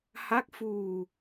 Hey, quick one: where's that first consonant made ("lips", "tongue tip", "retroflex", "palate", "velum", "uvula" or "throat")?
throat